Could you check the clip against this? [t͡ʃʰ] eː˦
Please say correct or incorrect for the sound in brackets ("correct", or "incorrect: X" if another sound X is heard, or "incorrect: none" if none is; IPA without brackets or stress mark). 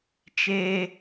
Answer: incorrect: t͡ʃ